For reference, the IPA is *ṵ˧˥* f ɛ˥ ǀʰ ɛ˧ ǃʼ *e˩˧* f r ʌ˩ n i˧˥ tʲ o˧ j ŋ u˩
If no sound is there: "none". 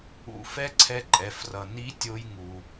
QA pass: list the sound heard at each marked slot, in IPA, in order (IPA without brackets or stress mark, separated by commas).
ṵ˧˥, ɛ˩˧